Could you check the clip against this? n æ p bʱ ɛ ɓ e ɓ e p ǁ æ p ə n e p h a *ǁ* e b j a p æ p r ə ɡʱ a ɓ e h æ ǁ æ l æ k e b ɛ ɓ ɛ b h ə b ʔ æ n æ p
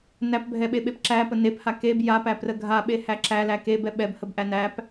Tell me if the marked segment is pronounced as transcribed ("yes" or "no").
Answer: no